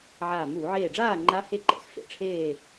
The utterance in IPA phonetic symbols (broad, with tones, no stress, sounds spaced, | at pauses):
ʕ aː˧˩ m uː˧˩˧ ʕ eː˧˩ ɖ͡ʐ aː˥˨ ŋ͡ǃ a˦˥ h e˥˨ ǃ ɛ̰˩˥ x f ḛ˩˧ ʈ͡ʂʰ eː˥˨